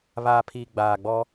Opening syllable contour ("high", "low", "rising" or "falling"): low